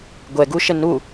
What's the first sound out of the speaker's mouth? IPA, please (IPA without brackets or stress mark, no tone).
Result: ɡʷ